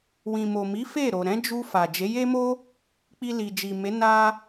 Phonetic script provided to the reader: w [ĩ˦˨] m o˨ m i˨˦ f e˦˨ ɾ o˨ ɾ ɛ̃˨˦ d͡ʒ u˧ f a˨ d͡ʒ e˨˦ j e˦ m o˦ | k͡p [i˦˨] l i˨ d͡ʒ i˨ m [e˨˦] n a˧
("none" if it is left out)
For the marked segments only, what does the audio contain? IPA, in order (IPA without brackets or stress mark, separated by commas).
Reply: ĩ˨, i˧, e˨˦